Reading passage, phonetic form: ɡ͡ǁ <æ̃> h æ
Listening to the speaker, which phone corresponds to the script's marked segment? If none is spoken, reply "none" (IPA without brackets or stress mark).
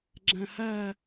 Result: æ̃